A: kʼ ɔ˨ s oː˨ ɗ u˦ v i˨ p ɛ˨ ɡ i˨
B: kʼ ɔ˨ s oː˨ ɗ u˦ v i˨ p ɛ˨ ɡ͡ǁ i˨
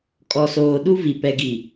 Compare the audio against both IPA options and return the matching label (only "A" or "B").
A